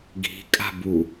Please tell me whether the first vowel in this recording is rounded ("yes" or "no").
no